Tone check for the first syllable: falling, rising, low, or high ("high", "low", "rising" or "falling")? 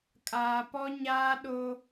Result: low